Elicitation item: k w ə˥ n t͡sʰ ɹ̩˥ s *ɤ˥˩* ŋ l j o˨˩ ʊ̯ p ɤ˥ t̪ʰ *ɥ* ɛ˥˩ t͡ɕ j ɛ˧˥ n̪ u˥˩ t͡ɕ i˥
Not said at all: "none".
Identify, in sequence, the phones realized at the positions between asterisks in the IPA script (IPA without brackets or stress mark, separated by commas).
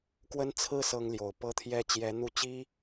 ɤ˥, j